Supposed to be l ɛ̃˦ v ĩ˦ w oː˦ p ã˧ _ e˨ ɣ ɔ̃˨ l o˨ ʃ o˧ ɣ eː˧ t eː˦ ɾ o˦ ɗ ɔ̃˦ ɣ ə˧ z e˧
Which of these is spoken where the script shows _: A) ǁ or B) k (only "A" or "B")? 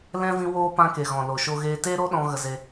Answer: B